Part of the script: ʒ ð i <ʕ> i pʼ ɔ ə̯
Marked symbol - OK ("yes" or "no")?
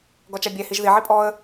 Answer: yes